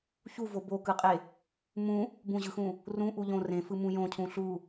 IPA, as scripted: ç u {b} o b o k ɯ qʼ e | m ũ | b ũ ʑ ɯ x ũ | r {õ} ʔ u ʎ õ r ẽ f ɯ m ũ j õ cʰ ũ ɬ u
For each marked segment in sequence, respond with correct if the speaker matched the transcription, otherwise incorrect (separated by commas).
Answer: incorrect, incorrect